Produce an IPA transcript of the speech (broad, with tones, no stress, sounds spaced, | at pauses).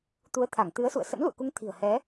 t̪ u˨˦ ə̯ t̪ʰ a˧˩ ŋ t̪ ɨ˨˦ ə̯ s ṵ˧˨ ə̯ s ə̰˧˥ n l ṵ˧˨ ə̯ k u˨˦ ŋ t̪ʰ i̤˨˩ ə̯ h ɛ˨˦